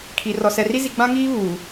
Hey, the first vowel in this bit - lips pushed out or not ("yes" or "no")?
no